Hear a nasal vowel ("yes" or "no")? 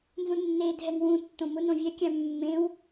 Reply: yes